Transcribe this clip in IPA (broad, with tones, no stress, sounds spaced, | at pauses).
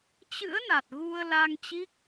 t͡ɕ ɨ̰˧˥ ə̯ n a˨˩ t̚ ɣ u˧ ə̯ l a˧ ŋ t͡ɕ i˦˥ k̚